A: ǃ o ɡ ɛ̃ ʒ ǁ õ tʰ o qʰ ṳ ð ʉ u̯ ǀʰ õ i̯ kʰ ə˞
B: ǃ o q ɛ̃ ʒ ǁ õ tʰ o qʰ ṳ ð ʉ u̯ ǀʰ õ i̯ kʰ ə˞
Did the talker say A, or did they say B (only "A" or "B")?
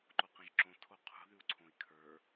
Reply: B